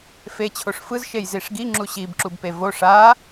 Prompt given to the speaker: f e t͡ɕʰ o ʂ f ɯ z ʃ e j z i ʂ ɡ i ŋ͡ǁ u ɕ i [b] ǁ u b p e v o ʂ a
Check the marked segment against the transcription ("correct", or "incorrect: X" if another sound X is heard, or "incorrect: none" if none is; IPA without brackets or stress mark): correct